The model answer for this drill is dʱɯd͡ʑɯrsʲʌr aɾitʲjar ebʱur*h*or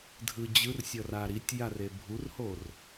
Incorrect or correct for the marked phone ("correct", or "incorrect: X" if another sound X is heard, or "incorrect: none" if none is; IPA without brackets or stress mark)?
correct